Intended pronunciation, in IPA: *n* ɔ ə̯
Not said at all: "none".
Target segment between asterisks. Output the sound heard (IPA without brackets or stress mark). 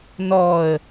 n